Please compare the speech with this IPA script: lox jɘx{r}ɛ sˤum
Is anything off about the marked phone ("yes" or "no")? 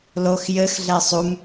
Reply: yes